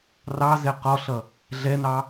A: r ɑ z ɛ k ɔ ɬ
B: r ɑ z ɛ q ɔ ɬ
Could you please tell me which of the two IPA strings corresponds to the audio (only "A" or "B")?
B